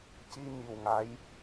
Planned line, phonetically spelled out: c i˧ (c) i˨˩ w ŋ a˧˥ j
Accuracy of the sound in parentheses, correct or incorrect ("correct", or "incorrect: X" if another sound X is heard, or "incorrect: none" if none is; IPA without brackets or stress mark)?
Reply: incorrect: ɲ